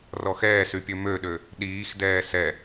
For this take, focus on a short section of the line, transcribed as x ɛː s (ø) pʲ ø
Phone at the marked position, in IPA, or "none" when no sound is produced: y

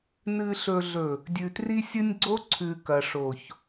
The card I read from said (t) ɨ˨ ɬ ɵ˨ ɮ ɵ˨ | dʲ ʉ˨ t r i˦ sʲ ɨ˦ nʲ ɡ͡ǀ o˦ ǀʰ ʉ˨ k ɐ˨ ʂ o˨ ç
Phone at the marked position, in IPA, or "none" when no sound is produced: n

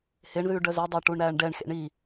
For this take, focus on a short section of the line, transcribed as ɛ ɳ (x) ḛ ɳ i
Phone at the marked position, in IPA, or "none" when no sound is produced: x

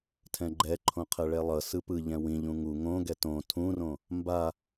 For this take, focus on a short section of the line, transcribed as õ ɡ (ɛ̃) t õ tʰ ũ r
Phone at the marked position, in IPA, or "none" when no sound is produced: ɛ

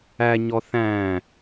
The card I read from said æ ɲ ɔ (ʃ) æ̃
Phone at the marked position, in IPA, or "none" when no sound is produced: θ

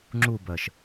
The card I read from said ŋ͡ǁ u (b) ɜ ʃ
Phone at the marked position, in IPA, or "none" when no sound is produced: b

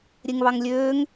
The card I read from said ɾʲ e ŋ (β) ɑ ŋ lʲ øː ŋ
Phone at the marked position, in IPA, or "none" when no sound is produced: β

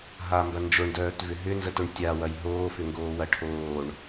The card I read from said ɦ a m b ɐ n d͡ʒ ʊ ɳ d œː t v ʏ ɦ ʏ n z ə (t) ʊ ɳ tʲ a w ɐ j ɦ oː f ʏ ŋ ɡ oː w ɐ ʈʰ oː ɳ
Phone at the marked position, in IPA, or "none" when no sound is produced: t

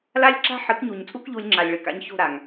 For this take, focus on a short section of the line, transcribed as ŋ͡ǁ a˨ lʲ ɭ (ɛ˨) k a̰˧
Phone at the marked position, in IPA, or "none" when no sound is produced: ɨ˨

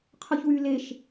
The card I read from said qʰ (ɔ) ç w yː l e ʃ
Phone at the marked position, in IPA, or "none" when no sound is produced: ɔ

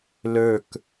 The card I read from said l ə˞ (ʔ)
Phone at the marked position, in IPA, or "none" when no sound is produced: k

